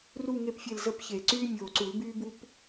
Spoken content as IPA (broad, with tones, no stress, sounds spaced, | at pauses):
r u˦˨ ŋ e˦˨ p fʲ e˦˨ l z ə˦ p ç e˨˩˦ ǀ yː˦ mʲ oː˨ ǀ u˨˩˦ l b yː˦ b u˦ p